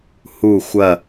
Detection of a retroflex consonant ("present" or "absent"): absent